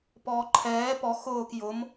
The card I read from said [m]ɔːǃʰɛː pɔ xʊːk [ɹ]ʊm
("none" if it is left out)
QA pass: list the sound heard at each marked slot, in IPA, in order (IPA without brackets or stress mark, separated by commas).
p, j